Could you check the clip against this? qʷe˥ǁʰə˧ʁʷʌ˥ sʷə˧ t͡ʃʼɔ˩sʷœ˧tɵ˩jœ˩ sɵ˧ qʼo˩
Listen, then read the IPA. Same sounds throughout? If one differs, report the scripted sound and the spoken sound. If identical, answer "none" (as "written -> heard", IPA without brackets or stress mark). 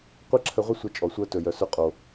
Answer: ʌ˥ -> ə˥